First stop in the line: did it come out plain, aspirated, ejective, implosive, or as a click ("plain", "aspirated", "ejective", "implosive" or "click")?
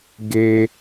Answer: plain